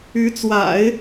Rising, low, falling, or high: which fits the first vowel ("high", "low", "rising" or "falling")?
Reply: rising